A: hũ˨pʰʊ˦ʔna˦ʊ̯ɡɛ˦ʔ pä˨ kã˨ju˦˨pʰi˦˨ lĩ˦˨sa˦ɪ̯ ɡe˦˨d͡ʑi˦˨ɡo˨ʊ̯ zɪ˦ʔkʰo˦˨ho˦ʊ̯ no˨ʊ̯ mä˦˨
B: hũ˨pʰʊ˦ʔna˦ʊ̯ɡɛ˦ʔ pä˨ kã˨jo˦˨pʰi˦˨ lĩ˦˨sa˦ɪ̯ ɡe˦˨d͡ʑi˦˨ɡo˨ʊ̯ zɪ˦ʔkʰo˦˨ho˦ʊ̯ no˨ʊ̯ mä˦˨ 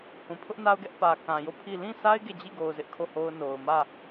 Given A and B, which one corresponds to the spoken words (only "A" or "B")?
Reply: B